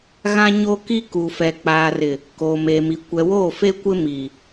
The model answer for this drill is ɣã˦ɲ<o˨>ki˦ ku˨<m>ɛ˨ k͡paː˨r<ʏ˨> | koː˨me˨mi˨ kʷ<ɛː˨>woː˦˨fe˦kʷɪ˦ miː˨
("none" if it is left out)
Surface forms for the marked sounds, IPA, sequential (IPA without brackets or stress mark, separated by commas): o˦, f, ɪ˨, ɛ˨